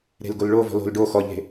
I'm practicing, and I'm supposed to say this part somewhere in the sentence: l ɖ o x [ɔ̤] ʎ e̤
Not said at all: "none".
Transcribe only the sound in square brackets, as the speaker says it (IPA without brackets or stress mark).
ɔ